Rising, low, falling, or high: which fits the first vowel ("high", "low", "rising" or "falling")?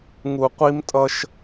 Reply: low